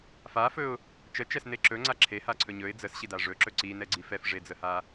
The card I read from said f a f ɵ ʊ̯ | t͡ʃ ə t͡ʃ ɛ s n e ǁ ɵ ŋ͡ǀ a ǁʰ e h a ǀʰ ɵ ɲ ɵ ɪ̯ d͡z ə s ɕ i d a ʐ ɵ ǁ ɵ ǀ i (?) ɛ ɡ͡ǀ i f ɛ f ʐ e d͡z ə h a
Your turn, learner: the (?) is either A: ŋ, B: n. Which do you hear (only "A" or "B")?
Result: B